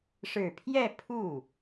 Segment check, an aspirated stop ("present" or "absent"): present